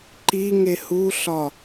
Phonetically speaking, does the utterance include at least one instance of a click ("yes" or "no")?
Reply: yes